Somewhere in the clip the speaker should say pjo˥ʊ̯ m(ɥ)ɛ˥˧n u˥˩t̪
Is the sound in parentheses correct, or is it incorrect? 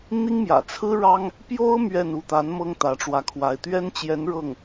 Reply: correct